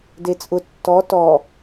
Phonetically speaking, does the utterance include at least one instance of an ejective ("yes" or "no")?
yes